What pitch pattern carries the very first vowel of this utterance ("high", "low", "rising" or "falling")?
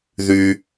low